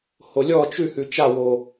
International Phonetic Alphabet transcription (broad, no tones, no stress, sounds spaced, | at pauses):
h o lʲ ɔ t͡ʃ ʉ h ʉ t͡ʃ a w o